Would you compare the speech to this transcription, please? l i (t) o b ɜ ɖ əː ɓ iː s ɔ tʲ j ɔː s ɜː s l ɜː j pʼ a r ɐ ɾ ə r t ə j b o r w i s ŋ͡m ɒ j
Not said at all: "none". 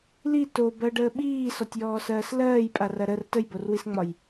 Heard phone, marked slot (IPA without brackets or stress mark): t